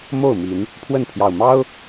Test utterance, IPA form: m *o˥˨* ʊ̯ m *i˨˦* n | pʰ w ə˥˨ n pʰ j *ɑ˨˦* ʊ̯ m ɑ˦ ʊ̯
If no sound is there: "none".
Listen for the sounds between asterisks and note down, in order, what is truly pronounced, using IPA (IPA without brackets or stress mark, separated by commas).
o˥˨, i˨˦, ɑ˨˩